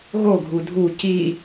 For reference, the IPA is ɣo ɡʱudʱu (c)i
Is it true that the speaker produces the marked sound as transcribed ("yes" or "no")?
yes